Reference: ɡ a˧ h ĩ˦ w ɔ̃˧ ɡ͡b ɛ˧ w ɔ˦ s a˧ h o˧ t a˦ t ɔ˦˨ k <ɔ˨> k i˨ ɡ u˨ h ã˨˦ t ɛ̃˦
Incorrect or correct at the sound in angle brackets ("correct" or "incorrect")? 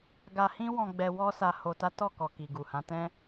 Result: correct